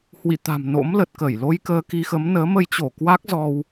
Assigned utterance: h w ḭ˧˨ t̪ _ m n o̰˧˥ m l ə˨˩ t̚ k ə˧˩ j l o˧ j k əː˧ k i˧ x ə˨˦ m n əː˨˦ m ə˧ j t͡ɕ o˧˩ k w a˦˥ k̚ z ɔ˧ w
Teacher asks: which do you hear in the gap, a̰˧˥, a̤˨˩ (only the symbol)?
a̤˨˩